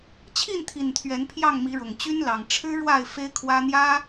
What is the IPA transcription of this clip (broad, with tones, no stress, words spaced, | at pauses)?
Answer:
t͡ɕʰi˥˨nt̪ʰi˨˩n t̪ʰɥɛ˨˦npʰjɑ˥˨ŋmi˨˦ɻʊ˨˩ŋ t͡ɕy˦nlɑ˨˩ŋ ʈ͡ʂʰɻ̩˦ ɻwa˥˨ɪ̯ fe˦ɪ̯kʰwä˦ n̪jä˦